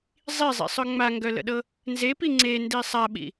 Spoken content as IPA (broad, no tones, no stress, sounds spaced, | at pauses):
zˤ i zˤ ḭ sˤ œ ŋ͡m a ŋ ɡ œ l ə̰ ɗ ɤ | n z e p i ŋ͡ǀ e n d i sˤ a ɓ ḭ